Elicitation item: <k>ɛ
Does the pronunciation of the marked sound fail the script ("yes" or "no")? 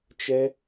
yes